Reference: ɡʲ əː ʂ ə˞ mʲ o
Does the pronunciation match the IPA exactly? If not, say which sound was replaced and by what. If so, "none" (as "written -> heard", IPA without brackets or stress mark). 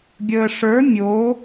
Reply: none